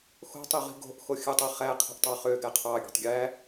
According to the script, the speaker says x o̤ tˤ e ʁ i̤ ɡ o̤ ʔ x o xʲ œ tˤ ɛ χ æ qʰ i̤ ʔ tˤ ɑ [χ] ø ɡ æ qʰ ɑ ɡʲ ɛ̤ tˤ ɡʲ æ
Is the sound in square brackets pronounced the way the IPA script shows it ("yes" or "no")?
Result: yes